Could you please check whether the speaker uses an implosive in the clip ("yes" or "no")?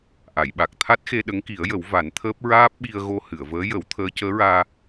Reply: yes